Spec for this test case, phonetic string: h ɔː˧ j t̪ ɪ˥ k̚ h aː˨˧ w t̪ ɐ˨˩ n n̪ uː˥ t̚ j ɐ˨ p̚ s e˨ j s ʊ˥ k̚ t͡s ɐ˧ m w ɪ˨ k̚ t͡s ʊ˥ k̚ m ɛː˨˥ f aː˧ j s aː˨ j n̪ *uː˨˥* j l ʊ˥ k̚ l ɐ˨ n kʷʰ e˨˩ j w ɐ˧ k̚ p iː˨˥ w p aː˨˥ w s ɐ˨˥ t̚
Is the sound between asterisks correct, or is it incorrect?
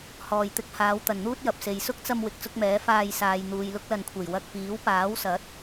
incorrect